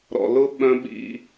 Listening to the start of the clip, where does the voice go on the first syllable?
low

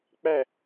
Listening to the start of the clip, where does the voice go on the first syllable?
falling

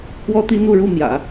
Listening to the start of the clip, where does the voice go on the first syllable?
high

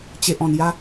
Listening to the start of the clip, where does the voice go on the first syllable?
high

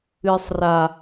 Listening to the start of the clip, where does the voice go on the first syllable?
low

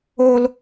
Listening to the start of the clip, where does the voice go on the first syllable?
high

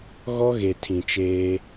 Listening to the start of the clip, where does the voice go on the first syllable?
high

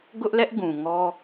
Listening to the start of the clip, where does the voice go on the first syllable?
high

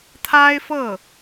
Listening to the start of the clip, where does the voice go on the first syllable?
high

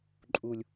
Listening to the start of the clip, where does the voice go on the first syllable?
low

